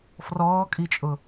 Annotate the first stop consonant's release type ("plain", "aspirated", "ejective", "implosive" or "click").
ejective